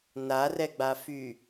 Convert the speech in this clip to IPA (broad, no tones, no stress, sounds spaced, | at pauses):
n a r ɛ ɡ͡b a f y